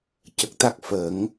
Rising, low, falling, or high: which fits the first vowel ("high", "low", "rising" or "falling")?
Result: low